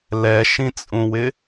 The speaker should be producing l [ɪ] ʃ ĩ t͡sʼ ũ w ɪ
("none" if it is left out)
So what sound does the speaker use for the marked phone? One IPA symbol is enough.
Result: ɛ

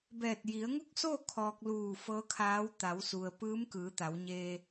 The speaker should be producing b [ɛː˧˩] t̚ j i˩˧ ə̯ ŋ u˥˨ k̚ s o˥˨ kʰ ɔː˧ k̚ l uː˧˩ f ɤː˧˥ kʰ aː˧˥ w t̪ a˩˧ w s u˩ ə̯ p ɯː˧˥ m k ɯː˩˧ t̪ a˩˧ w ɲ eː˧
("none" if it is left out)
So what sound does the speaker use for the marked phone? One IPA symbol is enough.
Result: ɛː˧˩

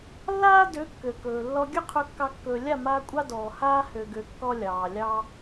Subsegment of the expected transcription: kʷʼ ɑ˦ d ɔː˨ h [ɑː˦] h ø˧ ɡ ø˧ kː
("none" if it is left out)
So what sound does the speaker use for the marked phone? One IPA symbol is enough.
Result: aː˦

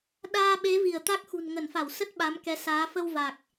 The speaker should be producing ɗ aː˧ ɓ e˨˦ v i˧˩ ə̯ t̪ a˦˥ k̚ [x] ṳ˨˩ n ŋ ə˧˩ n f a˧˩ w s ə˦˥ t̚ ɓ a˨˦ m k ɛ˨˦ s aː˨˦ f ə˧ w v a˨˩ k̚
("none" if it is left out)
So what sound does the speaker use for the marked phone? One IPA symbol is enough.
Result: x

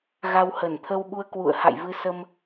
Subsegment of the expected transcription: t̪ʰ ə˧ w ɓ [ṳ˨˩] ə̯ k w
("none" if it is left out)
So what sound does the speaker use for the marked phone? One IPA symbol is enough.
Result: u˧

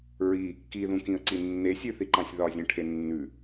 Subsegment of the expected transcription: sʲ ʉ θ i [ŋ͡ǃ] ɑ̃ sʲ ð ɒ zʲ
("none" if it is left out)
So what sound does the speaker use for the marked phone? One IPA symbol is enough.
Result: ǃ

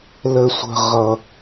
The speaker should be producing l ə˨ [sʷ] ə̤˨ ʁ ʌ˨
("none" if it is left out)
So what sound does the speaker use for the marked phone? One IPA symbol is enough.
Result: sʷ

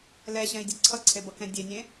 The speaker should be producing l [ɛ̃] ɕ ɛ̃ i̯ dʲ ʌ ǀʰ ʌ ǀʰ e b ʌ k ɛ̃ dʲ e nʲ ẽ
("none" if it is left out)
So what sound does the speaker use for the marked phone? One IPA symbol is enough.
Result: ɛ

